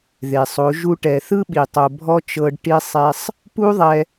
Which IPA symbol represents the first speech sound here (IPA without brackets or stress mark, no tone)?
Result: ð